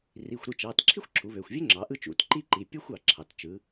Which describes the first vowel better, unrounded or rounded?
unrounded